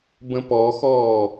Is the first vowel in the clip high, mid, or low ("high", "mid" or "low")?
mid